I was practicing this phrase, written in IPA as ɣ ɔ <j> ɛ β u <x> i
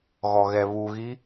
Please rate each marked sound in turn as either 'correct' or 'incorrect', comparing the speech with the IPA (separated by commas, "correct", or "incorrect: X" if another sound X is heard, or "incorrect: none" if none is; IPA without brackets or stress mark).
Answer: incorrect: ɣ, incorrect: ɣ